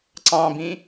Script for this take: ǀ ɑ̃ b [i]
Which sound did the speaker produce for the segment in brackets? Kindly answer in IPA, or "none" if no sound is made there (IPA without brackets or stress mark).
ĩ